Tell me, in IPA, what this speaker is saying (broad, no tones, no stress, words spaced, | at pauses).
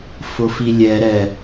fʊfilʲɛ ɾɛ